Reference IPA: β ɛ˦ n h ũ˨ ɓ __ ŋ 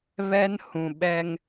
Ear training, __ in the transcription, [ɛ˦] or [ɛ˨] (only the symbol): ɛ˦